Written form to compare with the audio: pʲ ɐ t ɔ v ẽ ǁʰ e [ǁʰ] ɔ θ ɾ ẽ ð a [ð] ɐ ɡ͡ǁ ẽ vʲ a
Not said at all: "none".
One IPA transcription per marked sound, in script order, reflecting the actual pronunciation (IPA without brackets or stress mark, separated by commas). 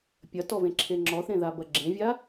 ŋ͡ǁ, b